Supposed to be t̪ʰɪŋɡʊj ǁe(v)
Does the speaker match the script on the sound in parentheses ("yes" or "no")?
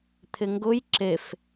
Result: no